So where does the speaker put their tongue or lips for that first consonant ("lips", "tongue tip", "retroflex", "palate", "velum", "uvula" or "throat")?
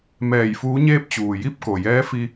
lips